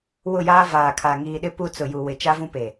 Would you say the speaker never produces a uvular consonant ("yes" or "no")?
yes